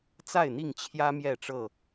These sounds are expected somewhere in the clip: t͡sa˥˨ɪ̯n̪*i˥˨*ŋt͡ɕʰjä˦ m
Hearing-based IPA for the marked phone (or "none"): i˥˨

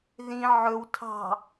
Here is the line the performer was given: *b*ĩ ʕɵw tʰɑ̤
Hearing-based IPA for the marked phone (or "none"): ð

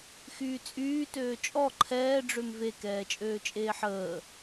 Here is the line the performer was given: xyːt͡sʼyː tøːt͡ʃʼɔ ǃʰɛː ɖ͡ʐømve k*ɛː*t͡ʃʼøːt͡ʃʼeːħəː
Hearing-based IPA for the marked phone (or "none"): ɛː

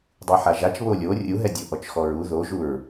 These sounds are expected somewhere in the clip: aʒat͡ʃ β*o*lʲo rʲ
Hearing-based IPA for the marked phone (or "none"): o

